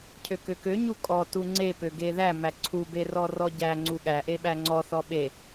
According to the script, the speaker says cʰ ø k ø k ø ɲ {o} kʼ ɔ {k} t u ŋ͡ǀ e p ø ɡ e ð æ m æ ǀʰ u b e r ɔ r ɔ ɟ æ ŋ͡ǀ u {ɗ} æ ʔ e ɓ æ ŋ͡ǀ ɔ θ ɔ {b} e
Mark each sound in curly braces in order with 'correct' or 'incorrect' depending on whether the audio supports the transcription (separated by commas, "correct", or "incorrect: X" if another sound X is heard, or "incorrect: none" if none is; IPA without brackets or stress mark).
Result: incorrect: u, incorrect: none, incorrect: ɠ, incorrect: ɓ